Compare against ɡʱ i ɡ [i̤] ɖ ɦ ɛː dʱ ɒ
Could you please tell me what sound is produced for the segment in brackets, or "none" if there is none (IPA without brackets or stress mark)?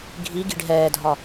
i̤